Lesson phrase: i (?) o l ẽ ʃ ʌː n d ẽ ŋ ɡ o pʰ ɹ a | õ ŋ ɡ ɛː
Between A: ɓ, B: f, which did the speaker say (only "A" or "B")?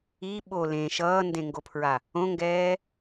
A